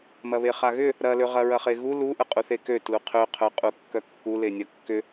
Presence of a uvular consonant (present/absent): present